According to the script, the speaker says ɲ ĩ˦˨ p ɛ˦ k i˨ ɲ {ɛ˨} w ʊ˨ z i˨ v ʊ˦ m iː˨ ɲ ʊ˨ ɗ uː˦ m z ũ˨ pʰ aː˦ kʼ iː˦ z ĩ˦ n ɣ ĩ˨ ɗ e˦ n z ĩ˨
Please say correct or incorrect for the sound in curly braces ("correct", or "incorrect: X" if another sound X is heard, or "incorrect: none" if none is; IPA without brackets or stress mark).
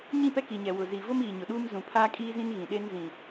correct